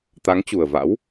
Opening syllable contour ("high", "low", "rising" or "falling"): rising